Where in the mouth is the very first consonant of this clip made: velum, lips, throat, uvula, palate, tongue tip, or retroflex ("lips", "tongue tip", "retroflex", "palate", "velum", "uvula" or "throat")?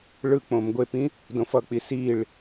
retroflex